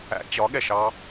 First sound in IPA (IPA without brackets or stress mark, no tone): æ̰